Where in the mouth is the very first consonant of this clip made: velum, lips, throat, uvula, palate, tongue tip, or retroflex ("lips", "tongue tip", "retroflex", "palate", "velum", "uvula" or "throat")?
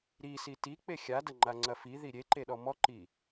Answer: tongue tip